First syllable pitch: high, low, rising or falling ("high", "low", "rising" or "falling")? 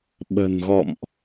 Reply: low